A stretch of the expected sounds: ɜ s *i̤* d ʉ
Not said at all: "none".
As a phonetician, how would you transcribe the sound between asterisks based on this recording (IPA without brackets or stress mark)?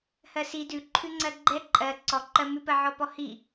i